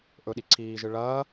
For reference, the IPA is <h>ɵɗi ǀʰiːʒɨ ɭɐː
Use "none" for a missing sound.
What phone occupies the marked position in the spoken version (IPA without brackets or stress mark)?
ʔ